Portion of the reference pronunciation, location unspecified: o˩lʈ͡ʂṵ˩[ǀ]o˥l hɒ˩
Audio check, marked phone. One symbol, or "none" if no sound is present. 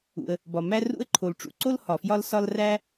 ǀ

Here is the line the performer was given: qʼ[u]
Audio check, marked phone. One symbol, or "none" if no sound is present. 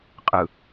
ɯ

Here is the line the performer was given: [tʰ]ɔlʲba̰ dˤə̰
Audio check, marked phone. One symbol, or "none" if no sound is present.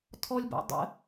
tʰ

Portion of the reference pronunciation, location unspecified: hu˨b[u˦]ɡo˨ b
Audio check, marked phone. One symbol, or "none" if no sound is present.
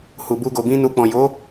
u˧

